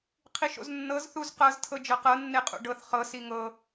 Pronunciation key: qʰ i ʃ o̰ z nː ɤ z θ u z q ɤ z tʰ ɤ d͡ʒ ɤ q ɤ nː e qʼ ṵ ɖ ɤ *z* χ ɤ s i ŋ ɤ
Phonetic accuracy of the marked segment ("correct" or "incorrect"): incorrect